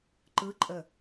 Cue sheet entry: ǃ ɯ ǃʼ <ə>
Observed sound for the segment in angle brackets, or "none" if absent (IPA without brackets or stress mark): ə